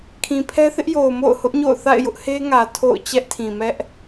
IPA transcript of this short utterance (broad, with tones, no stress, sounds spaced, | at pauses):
kʰ ĩ˨ pʰ ɛ˦ θ ɪ˦ ʔ j o˨ ʊ̯ m o̰˦˨ ʊ̯ h ʊ˦ ʔ ɲ o̰˦˨ ʊ̯ θ a̰˦˨ ɪ̯ j ʊ˦ ʔ h e˦ ŋ ä˨ tʰ o̰˦˨ ʊ̯ t͡ɕ ɛ˦ ʔ tʰ ĩ˨ m ɛ˦ ʔ